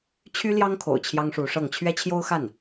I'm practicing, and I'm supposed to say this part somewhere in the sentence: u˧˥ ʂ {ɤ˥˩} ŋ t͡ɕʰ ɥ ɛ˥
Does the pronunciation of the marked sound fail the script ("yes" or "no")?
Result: no